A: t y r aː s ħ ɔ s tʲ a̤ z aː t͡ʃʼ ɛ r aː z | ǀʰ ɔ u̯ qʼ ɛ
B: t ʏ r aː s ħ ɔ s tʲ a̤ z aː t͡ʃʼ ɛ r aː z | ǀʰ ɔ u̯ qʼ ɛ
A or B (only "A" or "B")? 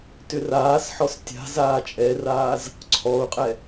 B